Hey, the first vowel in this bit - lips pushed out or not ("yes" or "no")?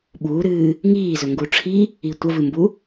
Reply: yes